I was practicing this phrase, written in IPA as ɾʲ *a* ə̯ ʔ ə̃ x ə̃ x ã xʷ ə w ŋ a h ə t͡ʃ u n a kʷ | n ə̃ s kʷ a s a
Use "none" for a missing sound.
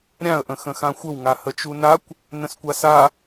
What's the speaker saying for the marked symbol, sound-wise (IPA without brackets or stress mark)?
ã